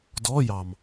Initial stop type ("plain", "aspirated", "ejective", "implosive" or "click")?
plain